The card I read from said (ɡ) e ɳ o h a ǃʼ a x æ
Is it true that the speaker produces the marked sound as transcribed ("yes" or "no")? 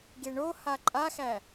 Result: yes